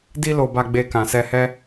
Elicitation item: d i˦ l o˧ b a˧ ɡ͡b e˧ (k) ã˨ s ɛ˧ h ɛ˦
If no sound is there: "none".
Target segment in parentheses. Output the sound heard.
k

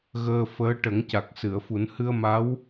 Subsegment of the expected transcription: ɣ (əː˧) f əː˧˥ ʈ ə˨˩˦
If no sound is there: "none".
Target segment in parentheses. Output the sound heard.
əː˧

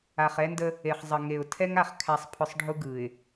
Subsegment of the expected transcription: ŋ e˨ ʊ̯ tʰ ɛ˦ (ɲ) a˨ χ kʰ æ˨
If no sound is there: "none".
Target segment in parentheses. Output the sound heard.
ŋ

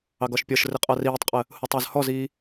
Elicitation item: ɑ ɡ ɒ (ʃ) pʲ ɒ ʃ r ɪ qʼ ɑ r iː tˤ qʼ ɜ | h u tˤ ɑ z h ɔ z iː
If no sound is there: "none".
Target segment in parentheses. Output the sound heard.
ʃ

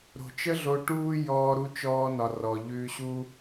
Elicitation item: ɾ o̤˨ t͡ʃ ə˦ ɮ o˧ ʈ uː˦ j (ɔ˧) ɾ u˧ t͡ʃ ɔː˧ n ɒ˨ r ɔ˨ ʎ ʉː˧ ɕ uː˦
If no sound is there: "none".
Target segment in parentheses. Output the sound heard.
ɔː˧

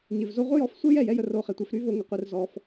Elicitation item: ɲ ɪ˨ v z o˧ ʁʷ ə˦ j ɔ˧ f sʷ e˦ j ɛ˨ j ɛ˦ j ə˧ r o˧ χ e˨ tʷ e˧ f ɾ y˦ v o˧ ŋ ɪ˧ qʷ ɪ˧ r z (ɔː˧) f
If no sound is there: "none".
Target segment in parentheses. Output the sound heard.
ɔ˧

